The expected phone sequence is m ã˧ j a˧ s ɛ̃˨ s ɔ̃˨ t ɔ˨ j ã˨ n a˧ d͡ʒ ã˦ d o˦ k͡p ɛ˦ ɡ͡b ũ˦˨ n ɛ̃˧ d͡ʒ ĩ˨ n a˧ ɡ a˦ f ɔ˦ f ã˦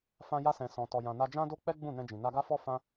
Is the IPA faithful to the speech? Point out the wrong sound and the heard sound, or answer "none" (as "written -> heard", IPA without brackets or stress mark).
m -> f